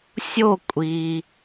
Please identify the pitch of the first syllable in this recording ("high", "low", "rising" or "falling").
falling